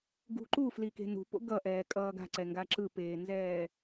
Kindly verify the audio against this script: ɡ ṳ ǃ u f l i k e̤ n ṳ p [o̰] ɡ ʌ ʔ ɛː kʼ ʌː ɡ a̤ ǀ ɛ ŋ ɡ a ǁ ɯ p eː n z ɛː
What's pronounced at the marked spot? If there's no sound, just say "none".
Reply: o̰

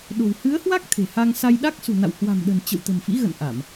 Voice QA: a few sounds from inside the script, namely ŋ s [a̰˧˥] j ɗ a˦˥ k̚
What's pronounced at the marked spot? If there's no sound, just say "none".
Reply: a˧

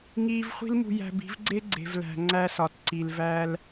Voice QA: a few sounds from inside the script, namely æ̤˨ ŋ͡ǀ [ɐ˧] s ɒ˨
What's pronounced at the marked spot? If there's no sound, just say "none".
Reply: æ˧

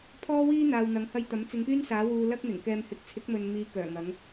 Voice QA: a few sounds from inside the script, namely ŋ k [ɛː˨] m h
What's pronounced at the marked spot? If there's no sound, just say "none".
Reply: ɛː˧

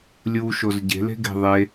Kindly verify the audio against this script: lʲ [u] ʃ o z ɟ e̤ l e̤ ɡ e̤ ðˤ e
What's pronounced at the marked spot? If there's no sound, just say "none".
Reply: u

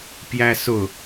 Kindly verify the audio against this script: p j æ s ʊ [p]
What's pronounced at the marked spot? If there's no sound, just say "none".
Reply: none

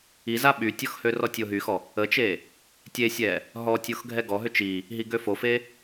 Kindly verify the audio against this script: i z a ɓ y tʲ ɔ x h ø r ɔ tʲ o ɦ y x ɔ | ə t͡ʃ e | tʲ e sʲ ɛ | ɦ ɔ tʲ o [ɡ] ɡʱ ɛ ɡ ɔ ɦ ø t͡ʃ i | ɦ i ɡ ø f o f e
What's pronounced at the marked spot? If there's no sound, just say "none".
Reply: x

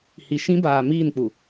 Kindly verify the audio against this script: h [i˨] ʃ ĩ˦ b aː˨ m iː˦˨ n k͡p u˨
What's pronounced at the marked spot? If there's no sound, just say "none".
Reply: i˨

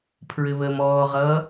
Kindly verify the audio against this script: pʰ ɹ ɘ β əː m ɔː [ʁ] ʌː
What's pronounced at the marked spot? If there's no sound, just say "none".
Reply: ʁ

